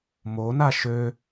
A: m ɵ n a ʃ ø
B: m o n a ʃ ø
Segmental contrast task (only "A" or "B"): B